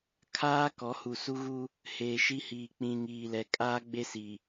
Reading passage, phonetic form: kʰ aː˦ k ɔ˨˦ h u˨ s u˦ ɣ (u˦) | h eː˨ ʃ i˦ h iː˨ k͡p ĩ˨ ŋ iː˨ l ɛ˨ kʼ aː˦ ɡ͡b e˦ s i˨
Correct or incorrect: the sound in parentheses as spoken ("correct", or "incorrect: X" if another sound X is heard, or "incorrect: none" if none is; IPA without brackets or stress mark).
correct